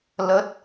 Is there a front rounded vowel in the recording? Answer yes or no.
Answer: no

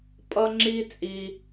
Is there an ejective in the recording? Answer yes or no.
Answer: yes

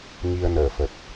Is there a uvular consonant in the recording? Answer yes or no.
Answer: no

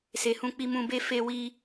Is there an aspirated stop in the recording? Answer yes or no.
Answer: no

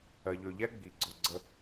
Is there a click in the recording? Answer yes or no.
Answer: yes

